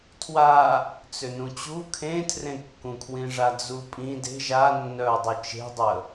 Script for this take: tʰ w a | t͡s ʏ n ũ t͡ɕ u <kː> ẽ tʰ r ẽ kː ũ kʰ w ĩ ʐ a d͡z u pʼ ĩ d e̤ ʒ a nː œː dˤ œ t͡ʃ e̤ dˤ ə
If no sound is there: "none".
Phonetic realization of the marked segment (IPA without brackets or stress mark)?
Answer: kʰ